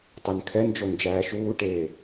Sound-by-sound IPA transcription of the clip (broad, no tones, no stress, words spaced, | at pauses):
tˤɛnkʰɛnd͡ʒon d͡ʒæːʃuːʈeː